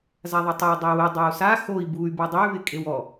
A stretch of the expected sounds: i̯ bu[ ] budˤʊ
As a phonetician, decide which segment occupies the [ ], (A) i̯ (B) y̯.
B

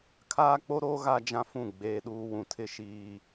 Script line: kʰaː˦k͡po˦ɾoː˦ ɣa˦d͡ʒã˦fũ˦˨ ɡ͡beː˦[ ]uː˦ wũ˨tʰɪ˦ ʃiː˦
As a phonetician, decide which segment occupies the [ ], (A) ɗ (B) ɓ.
A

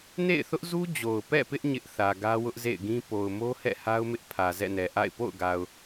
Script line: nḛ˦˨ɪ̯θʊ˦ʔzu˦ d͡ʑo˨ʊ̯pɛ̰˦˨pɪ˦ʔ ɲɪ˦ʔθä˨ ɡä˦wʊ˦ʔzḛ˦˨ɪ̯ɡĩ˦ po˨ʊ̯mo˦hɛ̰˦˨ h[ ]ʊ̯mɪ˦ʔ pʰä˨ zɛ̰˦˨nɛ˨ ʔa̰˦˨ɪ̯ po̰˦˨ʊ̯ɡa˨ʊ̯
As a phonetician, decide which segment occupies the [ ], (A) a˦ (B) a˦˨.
A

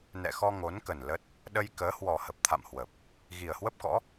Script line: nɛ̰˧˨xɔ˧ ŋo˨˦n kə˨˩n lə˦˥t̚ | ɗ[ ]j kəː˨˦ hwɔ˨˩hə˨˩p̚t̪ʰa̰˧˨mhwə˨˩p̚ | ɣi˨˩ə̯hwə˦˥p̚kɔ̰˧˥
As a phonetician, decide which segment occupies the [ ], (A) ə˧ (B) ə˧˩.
A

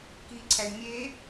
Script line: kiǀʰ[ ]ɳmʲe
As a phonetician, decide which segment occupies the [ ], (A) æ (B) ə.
A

